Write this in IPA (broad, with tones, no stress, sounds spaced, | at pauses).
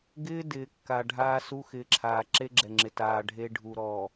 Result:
ɡ ɪː˦ d ɪː˨ kː a˨ ɖʱ aː˦ s u˦ x ɪ˨˦ ǁʰ aː˨ ǁ e˦ ɡ͡ǁ ɛ˨ ŋ͡ǁ ɪ˨ t aː˨ ɖʱ e˦ ɖʱ u˨ ɾ ɔː˨